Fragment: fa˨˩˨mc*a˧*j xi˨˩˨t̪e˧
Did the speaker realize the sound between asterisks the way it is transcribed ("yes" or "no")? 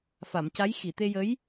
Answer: no